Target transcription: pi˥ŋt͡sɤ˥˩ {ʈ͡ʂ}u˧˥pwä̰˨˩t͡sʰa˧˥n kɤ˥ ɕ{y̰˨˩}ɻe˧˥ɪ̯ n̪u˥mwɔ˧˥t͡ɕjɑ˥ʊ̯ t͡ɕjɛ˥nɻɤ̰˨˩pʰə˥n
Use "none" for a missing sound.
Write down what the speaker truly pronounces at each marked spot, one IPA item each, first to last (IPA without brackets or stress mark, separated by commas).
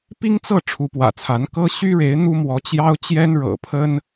ʈ͡ʂʰ, y˥